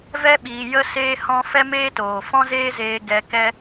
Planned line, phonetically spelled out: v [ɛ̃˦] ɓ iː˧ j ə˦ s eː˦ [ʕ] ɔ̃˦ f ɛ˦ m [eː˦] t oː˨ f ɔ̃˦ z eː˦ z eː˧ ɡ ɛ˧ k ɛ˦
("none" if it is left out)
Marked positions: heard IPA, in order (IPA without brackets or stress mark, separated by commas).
ɛ˦, h, eː˦